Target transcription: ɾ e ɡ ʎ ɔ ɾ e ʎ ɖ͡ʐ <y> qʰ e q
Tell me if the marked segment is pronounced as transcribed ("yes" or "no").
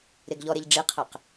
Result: no